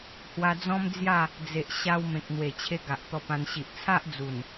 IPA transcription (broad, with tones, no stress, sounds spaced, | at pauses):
h w a˧ d͡z ɔ̃˦ m d͡z j a˥˧ | d͡z e˨ ʔ ɕ a˧ w m ẽ˨ k̚ n̪ w e˨˩ t͡ɕʰ e˧ ɡ a˨ ʔ t̪ ɔ˧ p ã˧ n ɕ i˨ ʔ t͡sʰ a˦ ʔ d͡z u˨˩ n